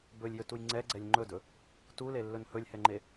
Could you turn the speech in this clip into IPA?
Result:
b ɵ lʲ j ɵ t u j ŋ͡ǀ ɛ ɡ͡ǀ ɛ lʲ ŋ͡ǃ ɵ d ɵ | t u l e lː ɵ n h ɵ lʲ h ɛ ŋ͡ǃ e

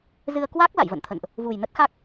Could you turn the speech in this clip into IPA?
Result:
z ɨ˧ ə̯ k w a˦˥ k̚ l a̰˧˨ j v ə̰˧˨ n t̪ʰ ə̰˧˨ n ʔ | v u˨˩ j n ə˦˥ t̚ x a˦˥ k̚

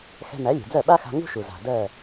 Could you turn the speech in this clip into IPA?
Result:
x ɛ̤˧ m æ˩˥ lʲ ṳ˩ d͡z ɜ˥˩ ɓ a˥ x a̤˧ ŋ ṳ˥ ʃ u˩ z a̤˩ d ɜ˥˩

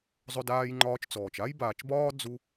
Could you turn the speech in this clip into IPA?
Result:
zˤ ɵ˦ d aː˦ j ŋ͡ǃ ɒː˦ t͡ʃ t͡s ɔː˩ t͡ʃ a˥ j b aː˨ t͡ʃ b ɒː˥ d͡z u˥

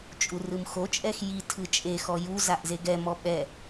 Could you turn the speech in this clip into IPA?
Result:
t͡ʃʼ u r ɯ m x o t͡ʃʼ ɛ x j i tʰ ɯ t͡ʃʼ e x ɔ j u z a ʔ z e ɡ ɛ m ɔ ɓ ɛ

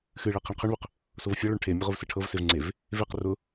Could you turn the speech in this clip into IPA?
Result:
x ɨ ɭ ɛ qʰ e ɳ qʰ ʏ ɳ β ʏ q | s o v fʲ ɤ ɭ o ɳ ʈʰ e mʲ ʊ ʁ ʊ v s ɨ ʈʰ ɤ v s e v ŋ͡ǀ e v | v e q r ʊ

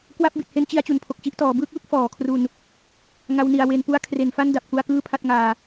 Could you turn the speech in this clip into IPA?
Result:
k w a˦˥ p̚ b i˨˩ t̚ h e˦˥ n t͡ɕ i˧ a̯ t͡ɕ u˨˩ n pʰ o˨˩ k̚ t͡ɕ i˥˩ ʔ t ɔː˩˦ b ɯː˦˥ k̚ w ɯ˦˥ k̚ f ɔː˩˦ kʰ r u˧ n | ŋ a˦˥ w n i˨˩ a̯ w e˧ n p u˥˩ a̯ kʰ r e˨˩ n f a˥˩ n d a˨˩ p̚ k u˧ a̯ k ɯː˥˩ pʰ a˥˩ t̚ ŋ aː˧

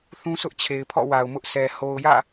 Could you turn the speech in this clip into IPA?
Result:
θ ũ˦ sʰ ʊ˦ ʔ t͡ɕʰ e˨ ɪ̯ pʰ ɔ̰˦˨ w a˨ ʊ̯ m ʊ˦ ʔ s ɛ˨ h o˨ ʊ̯ j ä̰˦˨

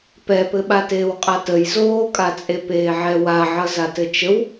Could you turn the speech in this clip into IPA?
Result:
p ɛ p ɘ ɓ a t eː w qʼ a t ə j z oː kʼ a t͡sʼ e p eː ʕ ɛ w a ʕ ʌ z a t ɘ t͡ʃ ə w

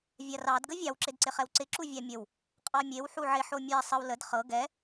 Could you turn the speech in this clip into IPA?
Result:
vʲ a r ɑ d ɡ ə vʲ ɑ w ǁ ɪ d ǀ ɪ χ ɛ w ǀ ɪ ǁ u vʲ ɑ mʲ ə w | qʼ ɑ mʲ e w ħ u ʕ ɪ ħ o mʲ ɛ sˤ ə w l ə d χ ɤ ɡ ɛ

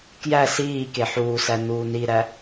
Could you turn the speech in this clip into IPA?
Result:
k j æ s iː k e ħ uː s æ n uː n i ɾ æ

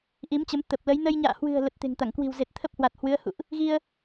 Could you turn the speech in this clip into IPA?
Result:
ʔ i˨˦ m t͡ɕ ə˨˦ m t̪ ə˨˩ p̚ l ə˨˦ j n ə˧ j ɲ a̰ː˧˨ h w ɨ̤˨˩ ə̯ l ə˨˩ t̚ t̪ e̤˨˩ ŋ t̪ a˧˩ ŋ k w i̤˨˩ w z e˨˩ t̚ t̪ʰ ə˦˥ p̚ h w a˨˩ t̚ h w ɨ˨˦ ə̯ h ṵ˧˨ ʔ | ɣ i˧ ə̯

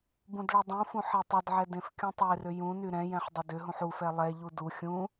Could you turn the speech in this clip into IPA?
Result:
b ũ d ɭ ɛ dˤ ũ f ũ ħ e tˤ ʏ d ʕ ɛ d ẽ f kʲ ũ tˤ e r ʏ j ũ n y ɾ ɛ̃ j ɛ̃ ħ dˤ ʏ d ʏ ɦ ũ ħ u f ɛ lˠ ɛ ʎ u d u xʲ ũ

